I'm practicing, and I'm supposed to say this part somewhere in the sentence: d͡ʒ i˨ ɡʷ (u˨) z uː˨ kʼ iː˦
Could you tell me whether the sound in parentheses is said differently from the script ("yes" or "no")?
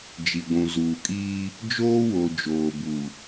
yes